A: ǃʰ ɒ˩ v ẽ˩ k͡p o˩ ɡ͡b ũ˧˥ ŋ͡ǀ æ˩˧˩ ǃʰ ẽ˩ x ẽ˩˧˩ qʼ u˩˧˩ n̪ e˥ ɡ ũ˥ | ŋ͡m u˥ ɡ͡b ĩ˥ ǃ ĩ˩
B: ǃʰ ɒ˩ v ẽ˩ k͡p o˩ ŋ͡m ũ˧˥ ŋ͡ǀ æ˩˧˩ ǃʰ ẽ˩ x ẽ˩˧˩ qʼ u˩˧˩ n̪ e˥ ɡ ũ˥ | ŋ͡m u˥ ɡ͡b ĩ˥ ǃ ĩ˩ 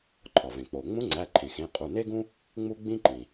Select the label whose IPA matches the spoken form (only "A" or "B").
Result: B